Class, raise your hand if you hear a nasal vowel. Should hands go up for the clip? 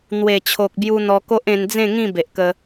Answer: yes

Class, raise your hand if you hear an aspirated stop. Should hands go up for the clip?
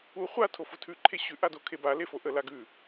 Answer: yes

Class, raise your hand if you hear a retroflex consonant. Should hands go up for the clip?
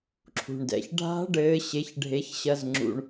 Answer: yes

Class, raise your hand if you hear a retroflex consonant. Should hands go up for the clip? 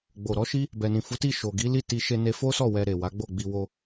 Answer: no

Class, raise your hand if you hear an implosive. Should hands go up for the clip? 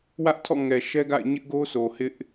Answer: no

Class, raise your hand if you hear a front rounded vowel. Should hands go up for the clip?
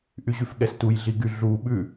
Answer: yes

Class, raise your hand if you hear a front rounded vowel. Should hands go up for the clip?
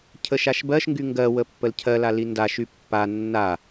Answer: yes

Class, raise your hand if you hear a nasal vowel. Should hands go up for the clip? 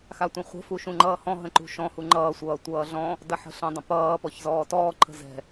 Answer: yes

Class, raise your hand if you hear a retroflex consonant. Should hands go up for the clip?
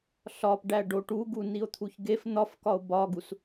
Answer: yes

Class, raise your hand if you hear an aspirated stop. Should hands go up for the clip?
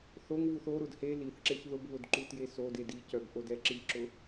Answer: no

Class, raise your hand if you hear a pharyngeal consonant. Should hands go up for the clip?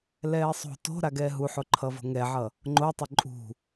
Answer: yes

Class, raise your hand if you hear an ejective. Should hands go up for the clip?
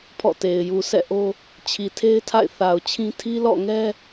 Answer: no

